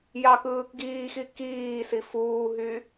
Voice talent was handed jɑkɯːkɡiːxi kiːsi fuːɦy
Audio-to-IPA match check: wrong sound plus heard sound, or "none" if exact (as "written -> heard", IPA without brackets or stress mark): none